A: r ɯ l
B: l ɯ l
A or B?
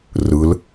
A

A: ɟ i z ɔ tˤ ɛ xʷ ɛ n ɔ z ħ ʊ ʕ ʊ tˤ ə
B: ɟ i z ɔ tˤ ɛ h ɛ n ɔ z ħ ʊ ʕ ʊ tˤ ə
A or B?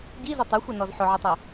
A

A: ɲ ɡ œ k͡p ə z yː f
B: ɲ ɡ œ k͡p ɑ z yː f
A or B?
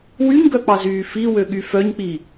B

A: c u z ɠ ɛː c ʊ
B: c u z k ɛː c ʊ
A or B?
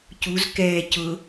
B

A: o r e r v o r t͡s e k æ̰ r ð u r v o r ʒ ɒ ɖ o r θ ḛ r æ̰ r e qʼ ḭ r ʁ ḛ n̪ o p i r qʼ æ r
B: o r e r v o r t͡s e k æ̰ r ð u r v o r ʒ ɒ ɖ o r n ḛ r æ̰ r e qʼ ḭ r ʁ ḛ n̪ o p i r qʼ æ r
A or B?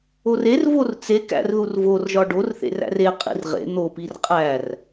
A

